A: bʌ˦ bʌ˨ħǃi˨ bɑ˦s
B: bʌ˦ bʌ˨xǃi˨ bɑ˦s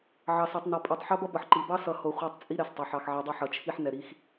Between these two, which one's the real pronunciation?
A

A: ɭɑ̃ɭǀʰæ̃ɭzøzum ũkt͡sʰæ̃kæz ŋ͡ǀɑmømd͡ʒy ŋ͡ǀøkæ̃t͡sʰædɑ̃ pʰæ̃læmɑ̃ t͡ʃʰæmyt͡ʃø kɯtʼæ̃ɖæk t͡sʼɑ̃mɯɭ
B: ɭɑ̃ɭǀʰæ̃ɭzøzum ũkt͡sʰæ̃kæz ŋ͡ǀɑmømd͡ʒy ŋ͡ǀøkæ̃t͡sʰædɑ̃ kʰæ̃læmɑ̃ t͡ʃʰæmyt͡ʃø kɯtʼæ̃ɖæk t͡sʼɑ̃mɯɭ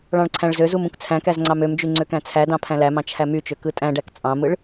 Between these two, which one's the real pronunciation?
A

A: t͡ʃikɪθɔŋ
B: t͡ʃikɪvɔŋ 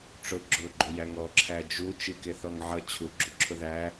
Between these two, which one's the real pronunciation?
A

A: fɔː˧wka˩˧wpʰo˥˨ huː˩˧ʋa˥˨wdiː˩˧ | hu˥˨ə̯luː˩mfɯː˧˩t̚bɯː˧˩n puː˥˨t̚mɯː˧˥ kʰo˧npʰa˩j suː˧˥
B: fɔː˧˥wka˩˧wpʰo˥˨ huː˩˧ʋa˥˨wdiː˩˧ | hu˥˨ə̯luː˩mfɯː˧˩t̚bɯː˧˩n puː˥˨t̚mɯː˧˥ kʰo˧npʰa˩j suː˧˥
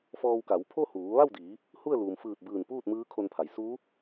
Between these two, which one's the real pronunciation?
A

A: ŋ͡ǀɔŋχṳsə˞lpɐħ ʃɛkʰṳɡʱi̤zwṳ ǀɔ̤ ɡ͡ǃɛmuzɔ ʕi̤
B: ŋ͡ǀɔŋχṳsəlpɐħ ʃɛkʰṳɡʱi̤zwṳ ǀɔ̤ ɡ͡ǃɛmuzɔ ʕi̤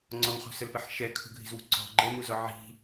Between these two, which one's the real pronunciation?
B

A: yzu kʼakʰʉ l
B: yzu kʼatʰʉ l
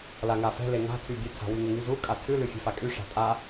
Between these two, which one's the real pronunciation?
B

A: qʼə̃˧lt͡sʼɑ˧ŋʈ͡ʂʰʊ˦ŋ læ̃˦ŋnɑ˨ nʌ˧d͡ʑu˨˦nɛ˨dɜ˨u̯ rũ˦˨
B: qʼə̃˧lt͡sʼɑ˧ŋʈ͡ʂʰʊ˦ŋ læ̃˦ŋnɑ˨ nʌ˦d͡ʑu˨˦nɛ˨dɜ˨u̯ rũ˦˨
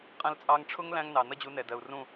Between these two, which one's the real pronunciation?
B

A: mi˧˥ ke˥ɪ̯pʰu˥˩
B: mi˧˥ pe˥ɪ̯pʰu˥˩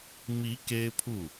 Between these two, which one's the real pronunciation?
A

